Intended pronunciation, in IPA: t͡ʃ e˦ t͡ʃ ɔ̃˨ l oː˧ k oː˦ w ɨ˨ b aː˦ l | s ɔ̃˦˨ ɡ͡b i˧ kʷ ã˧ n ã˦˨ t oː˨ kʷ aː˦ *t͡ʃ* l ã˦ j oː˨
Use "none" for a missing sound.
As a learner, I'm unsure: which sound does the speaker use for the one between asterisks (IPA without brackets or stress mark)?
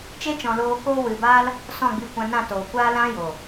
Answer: none